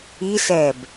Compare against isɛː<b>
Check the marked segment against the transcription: correct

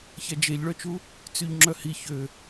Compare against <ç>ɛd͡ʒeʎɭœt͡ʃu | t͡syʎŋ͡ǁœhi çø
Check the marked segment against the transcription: correct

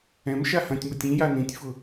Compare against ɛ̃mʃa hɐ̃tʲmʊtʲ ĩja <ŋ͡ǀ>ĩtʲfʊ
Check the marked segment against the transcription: incorrect: n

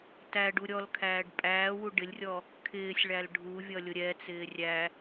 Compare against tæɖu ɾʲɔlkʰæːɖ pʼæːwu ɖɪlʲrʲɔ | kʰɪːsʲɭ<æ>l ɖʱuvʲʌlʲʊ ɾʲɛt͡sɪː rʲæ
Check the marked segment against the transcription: correct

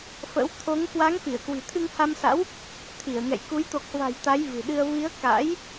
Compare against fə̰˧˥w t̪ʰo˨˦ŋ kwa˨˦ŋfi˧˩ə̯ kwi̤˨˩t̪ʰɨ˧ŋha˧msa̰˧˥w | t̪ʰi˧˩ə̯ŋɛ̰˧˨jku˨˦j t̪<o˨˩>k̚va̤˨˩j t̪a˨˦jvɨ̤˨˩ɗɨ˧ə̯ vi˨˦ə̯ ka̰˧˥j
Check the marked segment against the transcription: correct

